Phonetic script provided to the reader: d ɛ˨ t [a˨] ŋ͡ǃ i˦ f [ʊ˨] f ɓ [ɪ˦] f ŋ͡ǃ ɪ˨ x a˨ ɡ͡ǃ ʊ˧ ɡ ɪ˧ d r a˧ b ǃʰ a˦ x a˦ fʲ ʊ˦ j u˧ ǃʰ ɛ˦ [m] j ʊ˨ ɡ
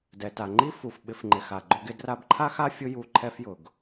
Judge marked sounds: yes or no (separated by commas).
yes, no, no, no